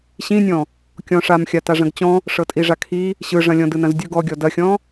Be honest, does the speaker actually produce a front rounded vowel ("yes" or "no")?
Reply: no